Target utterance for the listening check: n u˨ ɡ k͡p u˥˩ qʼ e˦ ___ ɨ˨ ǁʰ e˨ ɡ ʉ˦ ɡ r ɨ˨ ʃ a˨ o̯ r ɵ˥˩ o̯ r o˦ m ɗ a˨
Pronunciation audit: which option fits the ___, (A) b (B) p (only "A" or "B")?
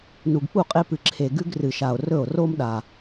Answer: B